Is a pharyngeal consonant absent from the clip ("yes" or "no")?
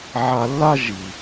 no